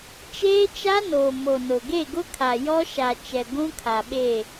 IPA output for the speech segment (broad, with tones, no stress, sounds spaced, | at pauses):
t͡ʃ eː˦ t͡ʃ a˦ n oː˨ m o˨ n ʊ˨ ɡ e˦˨ ɡ ʊ˦ kʰ a˨ j ɔ˦ ʃ a˨ t͡ʃ ɛ˨ ɡʷ ũ˦ kʰ a˨ ɓ e˦˨